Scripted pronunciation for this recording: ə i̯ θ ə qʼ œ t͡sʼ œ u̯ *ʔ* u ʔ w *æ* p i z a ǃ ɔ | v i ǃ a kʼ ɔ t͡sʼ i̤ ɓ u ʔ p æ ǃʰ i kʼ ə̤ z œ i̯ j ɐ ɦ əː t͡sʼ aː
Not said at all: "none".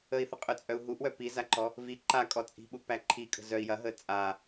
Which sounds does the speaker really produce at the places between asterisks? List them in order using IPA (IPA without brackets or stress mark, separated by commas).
ɦ, œ